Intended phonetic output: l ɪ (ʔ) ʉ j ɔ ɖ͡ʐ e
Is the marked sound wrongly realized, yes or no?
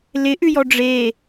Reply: no